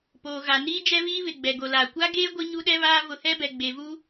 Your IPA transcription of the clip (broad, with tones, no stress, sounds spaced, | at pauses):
p oː˨ ɣ a˨ n iː˦ d͡ʒ ɛ˦ β iː˦ β ɪ˨ ɡ͡b ɛ˨ ɡ o˨ l aː˨ kʷ a˦ ɡ eː˦ ɡʷ i˦ ɲ u˦ ɗ ɛ˦ β aː˦ v ʊ˨˦ h ɛ˦ b ɛ˨ ɡ͡b e˨ v u˦